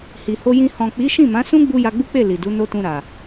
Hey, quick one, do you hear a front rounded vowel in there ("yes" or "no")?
no